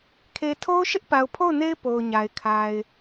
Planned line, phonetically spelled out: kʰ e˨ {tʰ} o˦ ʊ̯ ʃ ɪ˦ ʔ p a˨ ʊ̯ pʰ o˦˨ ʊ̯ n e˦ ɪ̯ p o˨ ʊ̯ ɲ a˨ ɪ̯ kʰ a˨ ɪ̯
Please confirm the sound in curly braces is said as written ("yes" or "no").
yes